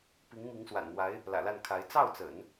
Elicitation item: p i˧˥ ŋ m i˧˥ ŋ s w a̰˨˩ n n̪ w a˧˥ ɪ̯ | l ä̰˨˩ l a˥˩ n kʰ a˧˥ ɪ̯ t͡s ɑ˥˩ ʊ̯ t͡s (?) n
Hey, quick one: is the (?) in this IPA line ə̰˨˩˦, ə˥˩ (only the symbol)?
ə̰˨˩˦